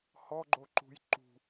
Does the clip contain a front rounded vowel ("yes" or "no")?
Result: no